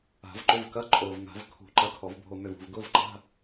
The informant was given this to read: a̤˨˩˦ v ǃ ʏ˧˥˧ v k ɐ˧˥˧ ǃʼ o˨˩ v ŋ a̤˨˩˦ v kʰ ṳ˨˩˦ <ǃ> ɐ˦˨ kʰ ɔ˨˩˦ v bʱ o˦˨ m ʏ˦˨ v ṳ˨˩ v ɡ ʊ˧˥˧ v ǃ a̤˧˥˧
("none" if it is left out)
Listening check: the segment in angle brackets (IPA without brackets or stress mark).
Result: ǃ